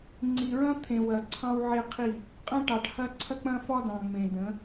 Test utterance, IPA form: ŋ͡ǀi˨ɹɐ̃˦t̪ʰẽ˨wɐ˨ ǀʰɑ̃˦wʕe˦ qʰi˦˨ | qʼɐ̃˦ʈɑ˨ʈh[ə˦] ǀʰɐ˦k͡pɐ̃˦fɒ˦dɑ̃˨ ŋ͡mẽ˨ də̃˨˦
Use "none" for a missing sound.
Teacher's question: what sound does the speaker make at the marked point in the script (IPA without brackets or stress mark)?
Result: ɐ˦